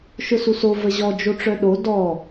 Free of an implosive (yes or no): no